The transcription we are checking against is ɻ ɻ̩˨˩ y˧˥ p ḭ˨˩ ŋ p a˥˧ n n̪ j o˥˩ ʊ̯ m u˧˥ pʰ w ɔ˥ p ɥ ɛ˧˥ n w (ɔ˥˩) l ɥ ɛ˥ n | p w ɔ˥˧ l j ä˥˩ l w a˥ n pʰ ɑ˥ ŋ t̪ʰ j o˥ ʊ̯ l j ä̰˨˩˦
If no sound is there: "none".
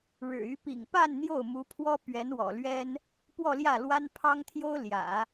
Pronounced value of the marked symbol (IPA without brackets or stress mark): ɔ̰˨˩